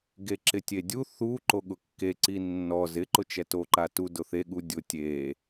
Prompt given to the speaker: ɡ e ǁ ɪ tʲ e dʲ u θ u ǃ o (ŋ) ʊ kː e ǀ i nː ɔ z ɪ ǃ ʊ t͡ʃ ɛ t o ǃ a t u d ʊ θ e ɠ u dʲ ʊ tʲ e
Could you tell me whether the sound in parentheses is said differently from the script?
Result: yes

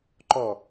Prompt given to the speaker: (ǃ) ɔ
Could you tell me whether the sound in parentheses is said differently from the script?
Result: no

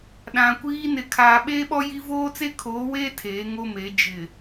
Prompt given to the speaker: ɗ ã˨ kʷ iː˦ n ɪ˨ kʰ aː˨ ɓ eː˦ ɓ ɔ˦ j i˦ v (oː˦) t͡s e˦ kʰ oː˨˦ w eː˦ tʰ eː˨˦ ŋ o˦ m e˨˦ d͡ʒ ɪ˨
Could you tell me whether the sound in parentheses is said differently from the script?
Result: no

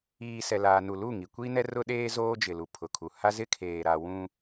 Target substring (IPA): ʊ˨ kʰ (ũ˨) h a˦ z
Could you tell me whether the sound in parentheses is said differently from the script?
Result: yes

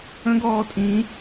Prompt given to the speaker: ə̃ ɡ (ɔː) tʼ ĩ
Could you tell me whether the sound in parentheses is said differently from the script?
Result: no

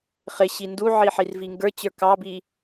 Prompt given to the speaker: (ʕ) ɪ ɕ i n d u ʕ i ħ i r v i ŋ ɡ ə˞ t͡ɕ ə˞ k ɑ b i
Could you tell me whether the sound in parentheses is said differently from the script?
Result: yes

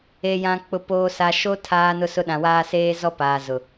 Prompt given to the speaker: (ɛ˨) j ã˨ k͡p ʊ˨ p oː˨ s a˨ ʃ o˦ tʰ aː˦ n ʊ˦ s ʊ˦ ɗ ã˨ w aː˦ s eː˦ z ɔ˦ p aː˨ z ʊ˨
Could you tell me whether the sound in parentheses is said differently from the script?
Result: yes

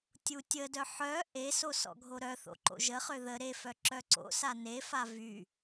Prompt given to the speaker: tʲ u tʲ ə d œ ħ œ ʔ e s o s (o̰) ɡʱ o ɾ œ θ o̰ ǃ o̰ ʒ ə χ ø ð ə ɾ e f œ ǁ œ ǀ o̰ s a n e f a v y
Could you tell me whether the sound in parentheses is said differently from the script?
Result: yes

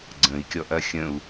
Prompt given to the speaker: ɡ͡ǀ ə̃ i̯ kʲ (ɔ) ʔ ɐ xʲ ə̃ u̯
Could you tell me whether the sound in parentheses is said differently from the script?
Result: no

